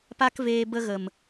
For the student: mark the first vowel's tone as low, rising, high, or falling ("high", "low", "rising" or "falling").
high